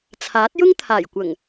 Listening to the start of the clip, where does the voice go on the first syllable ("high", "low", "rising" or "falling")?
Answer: rising